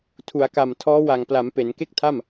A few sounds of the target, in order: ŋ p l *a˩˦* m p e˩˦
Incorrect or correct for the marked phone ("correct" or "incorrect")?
correct